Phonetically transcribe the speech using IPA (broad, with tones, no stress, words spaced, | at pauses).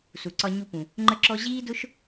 su˩ǀɒ˧ɲu˧pũ˩ | ŋ͡ǃə˥ǁɔ˥ ʑiː˥dʊ˥ʃ